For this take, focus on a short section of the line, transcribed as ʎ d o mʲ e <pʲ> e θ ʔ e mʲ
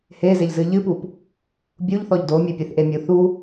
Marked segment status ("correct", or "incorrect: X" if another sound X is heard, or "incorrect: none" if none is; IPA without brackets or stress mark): correct